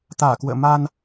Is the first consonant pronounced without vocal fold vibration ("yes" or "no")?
yes